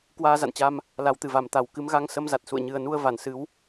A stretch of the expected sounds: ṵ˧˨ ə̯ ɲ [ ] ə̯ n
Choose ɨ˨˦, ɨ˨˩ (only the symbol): ɨ˨˩